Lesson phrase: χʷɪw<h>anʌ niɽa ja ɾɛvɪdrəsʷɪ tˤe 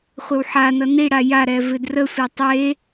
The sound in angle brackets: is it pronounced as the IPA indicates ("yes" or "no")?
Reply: no